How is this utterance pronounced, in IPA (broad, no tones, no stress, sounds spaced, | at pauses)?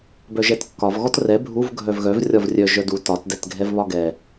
b œ ʒ ɛ t kː ɒ v ɣ ɔ t r ɛ bʱ u v ɡʱ œ v ɣ œ v rʲ ɒ v rʲ œ ʒ œ d u t ɒ t d ɛ t ɡʱ ɛ v β ɒ ɡ ɛ